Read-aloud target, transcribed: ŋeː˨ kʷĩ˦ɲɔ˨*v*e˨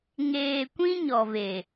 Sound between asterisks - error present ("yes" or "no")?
no